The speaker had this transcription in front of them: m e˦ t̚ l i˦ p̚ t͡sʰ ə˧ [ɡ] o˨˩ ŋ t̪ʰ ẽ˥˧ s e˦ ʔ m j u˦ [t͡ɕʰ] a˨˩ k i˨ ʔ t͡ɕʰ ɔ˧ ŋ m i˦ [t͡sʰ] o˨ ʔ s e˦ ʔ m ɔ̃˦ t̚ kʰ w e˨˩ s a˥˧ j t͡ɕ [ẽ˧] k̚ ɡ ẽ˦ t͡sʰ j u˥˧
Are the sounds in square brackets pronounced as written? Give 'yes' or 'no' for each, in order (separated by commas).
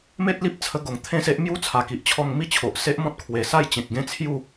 yes, no, no, no